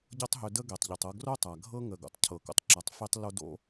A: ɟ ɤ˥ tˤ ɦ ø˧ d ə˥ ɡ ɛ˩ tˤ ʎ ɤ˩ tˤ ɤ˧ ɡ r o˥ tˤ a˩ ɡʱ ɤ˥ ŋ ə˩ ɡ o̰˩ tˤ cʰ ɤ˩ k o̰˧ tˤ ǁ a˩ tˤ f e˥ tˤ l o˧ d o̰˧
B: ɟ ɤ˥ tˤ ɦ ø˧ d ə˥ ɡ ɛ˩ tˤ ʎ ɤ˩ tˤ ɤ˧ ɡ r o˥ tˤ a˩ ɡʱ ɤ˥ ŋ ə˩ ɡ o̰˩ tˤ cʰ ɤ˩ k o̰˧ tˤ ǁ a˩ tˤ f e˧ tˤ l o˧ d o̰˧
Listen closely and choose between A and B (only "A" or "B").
B